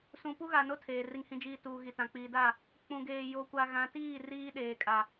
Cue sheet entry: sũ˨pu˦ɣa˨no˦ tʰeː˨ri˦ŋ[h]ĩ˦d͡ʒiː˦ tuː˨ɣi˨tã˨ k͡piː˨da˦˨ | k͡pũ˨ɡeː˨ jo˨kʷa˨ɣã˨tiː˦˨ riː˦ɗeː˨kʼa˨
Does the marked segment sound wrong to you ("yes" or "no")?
no